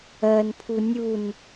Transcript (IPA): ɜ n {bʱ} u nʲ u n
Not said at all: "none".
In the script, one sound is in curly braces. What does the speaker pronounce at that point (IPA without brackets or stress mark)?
pʰ